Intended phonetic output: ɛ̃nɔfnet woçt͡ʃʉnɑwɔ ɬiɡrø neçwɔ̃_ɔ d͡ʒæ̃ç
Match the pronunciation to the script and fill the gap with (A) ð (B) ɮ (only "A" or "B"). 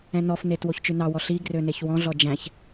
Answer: B